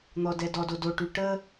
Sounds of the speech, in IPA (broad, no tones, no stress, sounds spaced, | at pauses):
n̪ ɔ d ɛ d ɔ d o d o ʈ y ʈ ə